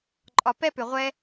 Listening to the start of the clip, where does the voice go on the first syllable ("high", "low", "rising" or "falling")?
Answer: low